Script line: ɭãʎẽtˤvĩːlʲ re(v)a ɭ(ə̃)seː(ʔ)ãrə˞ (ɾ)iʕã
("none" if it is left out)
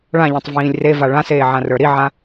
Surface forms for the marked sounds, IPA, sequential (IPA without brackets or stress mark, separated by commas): v, ã, ʕ, ɾ